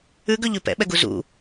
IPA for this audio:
ʉ ɡ ɵ ʎ ʉ p ɛ̰ ɓ ɛ ɡ u z ṵ

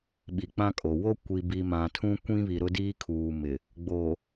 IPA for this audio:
ɓ i˨ k͡p ã˦ kʼ o˨ w o˦ kʷ i˨ b i˨ m ã˨ tʰ ũ˦ kʷ ĩ˦ β i˨ ɾ ʊ˦ d iː˦ kʰ uː˨ m ɪ˨ | ɡ͡b o˨

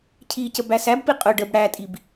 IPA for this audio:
cʰ i c ə b æ s æ b p i qʼ ʊ ɖ ə b ɽ æ tʼ i b

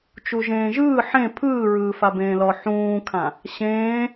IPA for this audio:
t͡ʃ u ʒ ẽː ʒ ɯː ħ ẽ pʰ ɯː ɹ ɯː f a b ẽː l ɔ ħ ũː kʰ ã | ɕ ẽː

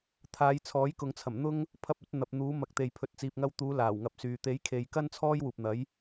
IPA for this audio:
t̪ʰ aː˨˧ j t͡sʰ ɔː˨˥ j k ʊ˨ ŋ t͡sʰ ɐ˨˩ m n̪ ʊ˥ ŋ | pʰ ɐ˧ p̚ ɵ˨˥ t̚ n̪ ɐ˨ p̚ n̪ uː˨˥ m ɐ˨˥ k̚ t̪ e˨ j pʰ ɵ˨ t̚ t͡s iː˨ p̚ ŋ ɐ˧ w t̪ uː˨˧ l aː˨˩ w ŋ ɐ˨ p̚ s yː˨ t̪ e˨˥ j kʰ e˨ j k ɐ˥ n t͡sʰ ɔː˥ j w uː˨ p̚ n̪ ɐ˨˥ j

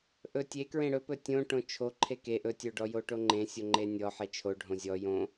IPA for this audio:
ʔ ɵ tʲ e k ɹ ẽ ɽ ɵ p ɵ tʲ õ ʈ õ t͡ʃʰ o ǃʰ e k e ʔ ɵ tʲ o ɖ ɔ j o ʈ o ŋ͡ǃ ẽ sʲ o ŋ͡ǃ e nʲ ɔ ħ e t͡ʃʰ o ɖʱ õ zʲ ɔ j õ

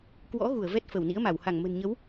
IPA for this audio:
k w ɔ̰˧˥ ɣ u˧˩ ə̯ v ɛ˦˥ t̚ f ə˧˩ w n ḭ˧˥ ə̯ m a˧˩ w h a˧˩ ŋ m ə̤˨˩ n ɲ ə˨˦ w

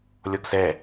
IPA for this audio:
lʲ ɔ ɡ s ɛ

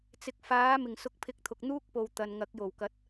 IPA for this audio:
t͡s ɪ˨ k̚ f aː˨˥ m ɪ˨˩ ŋ s ʊ˨˥ k̚ pʰ ɪ˨˥ k̚ t̪ʰ ʊ˨ k̚ n̪ uː˥ k̚ p o˨ w t̪ ɐ˨ n ŋ ɐ˨˥ k̚ j o˨˩ w k ɐ˨˥ t̚

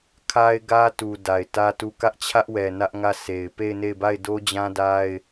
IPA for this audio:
kʰ a˦ ɪ̯ ɡ ä˦ t u˨ d a˨ ɪ̯ t ä˦ t u˦˨ k ä˦ ʔ t͡ɕʰ ä˦ ʔ w ɛ˨ n ä˦ ʔ ŋ ä˦˨ sʰ e˨ ɪ̯ p e˦˨ ɪ̯ n e˦˨ ɪ̯ b a˦˨ ɪ̯ d o˦ d͡ʑ ã˦ d a˦ ɪ̯

